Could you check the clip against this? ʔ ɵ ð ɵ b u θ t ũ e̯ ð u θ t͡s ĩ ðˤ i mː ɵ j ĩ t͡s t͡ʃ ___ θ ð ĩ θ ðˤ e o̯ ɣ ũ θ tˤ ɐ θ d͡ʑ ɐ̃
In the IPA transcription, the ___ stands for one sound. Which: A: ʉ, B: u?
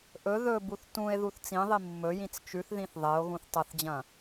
A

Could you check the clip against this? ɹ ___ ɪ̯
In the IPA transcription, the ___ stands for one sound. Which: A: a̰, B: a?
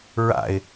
A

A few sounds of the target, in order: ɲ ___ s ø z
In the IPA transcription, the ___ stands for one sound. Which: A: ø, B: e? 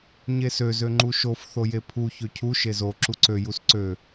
B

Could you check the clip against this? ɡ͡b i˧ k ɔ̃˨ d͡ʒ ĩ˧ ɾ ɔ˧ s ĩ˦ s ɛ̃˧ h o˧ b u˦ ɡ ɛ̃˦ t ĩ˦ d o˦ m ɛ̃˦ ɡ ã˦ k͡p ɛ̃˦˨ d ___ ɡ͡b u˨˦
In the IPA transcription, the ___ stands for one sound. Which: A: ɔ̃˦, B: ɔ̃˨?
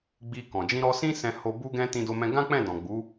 B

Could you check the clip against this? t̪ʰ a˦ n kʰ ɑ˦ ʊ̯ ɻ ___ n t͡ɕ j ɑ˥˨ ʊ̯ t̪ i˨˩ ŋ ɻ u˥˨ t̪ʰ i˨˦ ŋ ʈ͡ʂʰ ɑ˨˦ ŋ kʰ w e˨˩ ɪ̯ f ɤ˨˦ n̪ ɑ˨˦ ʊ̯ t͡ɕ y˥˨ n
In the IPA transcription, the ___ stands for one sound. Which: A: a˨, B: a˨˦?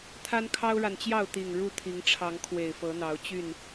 A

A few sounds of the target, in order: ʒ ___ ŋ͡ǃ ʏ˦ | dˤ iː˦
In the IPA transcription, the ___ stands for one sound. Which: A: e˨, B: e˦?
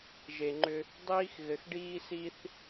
A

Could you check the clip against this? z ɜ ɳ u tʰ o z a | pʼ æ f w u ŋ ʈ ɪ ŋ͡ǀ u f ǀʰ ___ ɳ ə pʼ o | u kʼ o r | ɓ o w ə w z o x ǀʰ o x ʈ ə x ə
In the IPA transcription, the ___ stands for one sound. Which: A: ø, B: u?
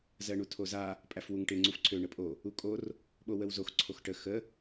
A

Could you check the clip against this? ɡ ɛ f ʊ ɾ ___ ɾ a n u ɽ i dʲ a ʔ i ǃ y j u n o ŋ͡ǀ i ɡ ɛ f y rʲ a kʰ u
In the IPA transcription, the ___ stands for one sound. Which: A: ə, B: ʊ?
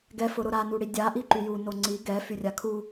B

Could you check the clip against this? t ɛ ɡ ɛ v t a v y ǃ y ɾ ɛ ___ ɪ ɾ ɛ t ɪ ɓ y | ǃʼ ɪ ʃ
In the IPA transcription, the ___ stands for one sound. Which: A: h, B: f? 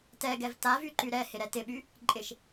A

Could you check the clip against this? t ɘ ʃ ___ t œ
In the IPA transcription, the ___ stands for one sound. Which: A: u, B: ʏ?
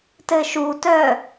A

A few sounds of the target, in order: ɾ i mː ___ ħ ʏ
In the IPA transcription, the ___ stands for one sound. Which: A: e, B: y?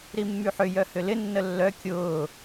B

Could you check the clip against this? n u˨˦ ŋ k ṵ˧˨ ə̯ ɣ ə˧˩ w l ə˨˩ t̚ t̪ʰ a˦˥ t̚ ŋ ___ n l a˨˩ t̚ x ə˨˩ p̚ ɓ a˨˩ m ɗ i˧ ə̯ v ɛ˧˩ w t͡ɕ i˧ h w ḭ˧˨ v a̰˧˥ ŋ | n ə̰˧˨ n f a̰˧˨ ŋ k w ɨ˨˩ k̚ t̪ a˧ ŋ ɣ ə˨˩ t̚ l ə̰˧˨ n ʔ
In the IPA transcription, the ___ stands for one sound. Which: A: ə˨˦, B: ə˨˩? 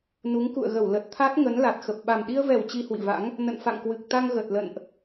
A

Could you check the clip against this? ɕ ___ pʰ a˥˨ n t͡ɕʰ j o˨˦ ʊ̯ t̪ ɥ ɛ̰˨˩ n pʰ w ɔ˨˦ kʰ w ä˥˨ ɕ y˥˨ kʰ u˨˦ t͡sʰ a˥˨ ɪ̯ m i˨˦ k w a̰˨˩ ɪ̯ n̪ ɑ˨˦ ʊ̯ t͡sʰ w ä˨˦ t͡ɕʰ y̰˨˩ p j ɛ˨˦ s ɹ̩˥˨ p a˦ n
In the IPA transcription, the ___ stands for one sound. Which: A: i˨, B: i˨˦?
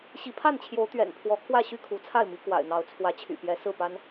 B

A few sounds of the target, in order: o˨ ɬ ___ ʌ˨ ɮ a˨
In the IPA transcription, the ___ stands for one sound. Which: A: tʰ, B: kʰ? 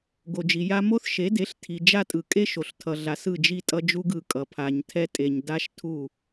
A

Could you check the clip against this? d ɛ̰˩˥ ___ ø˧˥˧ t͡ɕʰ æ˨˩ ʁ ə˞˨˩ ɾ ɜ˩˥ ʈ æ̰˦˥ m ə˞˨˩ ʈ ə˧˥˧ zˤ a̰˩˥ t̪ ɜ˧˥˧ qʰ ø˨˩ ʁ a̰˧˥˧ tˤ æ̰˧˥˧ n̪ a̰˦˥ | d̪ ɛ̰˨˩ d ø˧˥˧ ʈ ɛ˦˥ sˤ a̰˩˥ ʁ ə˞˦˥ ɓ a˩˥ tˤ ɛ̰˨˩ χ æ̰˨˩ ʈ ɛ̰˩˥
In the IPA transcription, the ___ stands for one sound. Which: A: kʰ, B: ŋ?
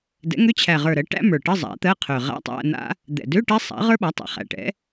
B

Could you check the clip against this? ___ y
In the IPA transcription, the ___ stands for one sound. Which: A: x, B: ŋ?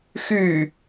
A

